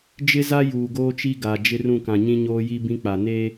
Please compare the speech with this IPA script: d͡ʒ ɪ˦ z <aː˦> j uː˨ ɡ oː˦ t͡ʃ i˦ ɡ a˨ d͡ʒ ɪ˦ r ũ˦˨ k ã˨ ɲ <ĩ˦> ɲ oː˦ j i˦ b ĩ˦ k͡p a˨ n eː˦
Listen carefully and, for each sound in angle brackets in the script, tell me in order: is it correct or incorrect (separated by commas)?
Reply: incorrect, correct